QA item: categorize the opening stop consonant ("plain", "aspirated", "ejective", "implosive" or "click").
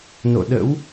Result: implosive